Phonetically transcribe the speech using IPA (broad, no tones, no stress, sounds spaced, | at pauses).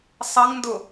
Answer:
sˤ ʌ ŋ n d ʊ